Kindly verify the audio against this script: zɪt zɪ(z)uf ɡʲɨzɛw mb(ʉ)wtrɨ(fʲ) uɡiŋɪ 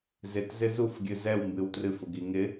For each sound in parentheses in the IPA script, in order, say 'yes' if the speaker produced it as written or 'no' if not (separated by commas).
yes, no, no